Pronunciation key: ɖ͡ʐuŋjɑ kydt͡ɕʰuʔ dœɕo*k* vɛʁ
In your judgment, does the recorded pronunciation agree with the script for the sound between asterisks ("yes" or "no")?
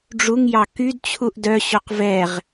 no